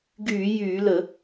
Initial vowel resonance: oral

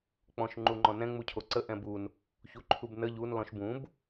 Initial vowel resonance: nasal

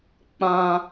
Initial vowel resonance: nasal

